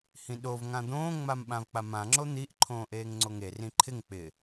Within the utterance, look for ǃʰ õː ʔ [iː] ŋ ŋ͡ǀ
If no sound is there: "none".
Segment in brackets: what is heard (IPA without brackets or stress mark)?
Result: eː